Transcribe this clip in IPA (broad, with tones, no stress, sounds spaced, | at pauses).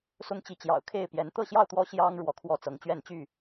s ʊ˦ ŋ t͡ɕ i˨˦ t͡ɕ j ɑ̰˨˩ ʊ̯ kʰ e˥˨ ɪ̯ p j ɛ˨˦ n t̪ ɤ˥˨ ɕ j ɑ˥˨ ʊ̯ t̪ w ɔ˦ ɕ j ɑ˦ ŋ ɻ w ɔ˨˦ kʰ w ɔ˥˨ t͡s ɤ˨˦ ŋ t͡ɕ ɥ ɛ˥˨ n t͡ɕ y˥˨